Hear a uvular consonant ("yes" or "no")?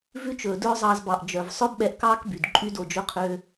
yes